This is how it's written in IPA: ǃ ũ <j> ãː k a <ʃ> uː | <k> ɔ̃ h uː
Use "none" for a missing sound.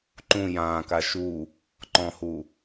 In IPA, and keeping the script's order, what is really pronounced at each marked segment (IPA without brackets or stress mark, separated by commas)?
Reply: j, ʃ, ǃ